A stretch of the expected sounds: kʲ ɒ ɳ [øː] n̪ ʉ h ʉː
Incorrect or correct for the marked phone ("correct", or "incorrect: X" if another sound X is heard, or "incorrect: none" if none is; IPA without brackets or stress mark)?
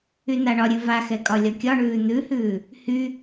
incorrect: ʉː